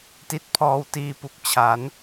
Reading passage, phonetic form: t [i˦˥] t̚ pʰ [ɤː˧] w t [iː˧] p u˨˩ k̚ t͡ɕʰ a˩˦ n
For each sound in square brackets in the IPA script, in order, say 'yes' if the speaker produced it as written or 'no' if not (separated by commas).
yes, no, yes